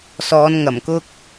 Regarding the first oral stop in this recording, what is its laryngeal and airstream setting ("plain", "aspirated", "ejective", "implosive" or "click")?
plain